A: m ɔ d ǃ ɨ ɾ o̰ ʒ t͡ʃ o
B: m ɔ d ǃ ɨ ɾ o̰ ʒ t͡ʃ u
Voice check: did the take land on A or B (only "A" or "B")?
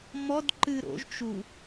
B